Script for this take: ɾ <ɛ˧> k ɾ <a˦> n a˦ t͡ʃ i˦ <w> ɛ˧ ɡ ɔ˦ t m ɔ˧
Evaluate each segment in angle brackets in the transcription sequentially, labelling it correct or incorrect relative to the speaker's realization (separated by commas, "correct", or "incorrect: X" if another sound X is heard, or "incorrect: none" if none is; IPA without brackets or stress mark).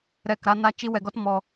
incorrect: ɛ˦˨, correct, correct